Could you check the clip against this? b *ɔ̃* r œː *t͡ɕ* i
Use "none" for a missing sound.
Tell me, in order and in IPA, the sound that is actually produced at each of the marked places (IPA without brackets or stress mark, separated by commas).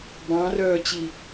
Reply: ɑ̃, t͡ɕ